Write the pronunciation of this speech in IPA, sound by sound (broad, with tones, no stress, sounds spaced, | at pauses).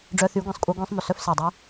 ɖ͡ʐ œ˧ θ y˨˦ ɡʷ ẽ˨ sˤ kʷʼ œ˧ ɡʷ ẽ˧ sˤ m ɵ˨ s œ˦ f s e˨ dˤ y˦